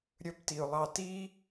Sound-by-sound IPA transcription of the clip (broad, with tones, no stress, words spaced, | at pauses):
ɾʲɵ˧˥bti˩ʊ̯lˠɑ˧ ti˥